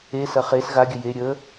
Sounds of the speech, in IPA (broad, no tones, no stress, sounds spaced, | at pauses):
e s ɐ χ e s ɣ a ɡʲ ə j e ɾʲ ə